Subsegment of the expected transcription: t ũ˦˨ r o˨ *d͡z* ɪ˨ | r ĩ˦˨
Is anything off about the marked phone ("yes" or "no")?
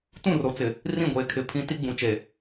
yes